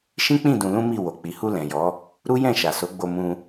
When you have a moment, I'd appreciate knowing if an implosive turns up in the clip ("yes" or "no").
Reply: no